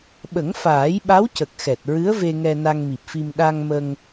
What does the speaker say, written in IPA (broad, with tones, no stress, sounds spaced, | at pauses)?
ɓ ə˨˩˦ ŋ f aː˨˩˦ j ɓ a˧˥ w c ə˨˩ k̚ x ɛ˨˩ t̚ ɹ ɨ˧˥ ə̯ v e˧ ŋ ɛ˧ n a˧ ŋ m i˨˩ p̚ f i˧ m ɗ a˧ ŋ m ə˧ ŋ